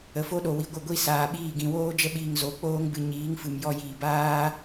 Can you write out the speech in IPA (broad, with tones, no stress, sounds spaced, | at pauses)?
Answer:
ə˧ f o˦ ɗ o˧ w i˧ ɡʷ ə˦˨ ɡʷ i˦ s aː˧ ɓ iː˦˨ ɡ ĩ˧ w oː˦ d͡ʒ ə˦ ɓ iː˧ ŋ z o˨˦ k͡p oː˦ ŋ b ɨ˧ ɲ iː˨˦ ŋ f ɨ˨ m j ɔ˧ j iː˨ b aː˦